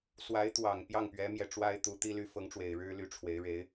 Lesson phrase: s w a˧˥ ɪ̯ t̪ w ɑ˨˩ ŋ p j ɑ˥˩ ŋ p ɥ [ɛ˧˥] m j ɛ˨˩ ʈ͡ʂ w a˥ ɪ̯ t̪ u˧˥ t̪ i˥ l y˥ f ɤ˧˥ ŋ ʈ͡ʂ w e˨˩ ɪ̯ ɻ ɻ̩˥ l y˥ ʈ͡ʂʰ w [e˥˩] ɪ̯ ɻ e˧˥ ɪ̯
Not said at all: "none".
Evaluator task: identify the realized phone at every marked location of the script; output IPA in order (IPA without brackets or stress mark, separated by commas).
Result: ɛ˧˥, e˧˥